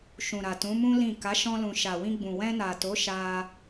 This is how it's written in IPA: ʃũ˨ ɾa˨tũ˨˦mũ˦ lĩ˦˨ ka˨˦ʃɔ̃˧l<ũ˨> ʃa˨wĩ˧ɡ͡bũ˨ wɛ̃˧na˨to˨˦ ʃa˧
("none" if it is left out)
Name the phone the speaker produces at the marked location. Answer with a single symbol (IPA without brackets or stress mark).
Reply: ũ˨